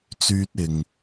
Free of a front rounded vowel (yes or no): no